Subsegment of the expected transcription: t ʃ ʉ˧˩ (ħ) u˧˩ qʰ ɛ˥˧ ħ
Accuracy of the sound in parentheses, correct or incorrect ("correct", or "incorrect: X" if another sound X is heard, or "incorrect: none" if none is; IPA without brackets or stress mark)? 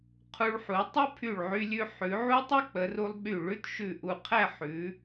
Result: incorrect: ʔ